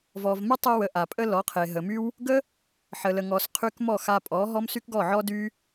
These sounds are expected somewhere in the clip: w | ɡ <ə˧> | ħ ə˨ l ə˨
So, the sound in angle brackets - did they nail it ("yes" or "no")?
no